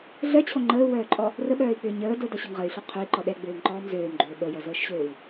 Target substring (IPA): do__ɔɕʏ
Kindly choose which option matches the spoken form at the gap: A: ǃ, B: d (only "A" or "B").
B